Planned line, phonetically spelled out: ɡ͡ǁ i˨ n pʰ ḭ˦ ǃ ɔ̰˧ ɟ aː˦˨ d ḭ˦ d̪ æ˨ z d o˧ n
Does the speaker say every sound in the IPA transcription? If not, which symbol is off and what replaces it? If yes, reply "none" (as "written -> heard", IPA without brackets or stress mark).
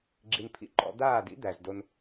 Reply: ɟ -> d̪